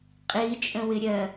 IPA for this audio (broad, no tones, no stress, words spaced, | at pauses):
qʼit͡ʃʼə̃wɪ ɾʲɜ